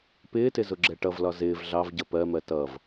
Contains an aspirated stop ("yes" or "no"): no